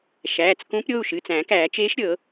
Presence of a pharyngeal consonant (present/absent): absent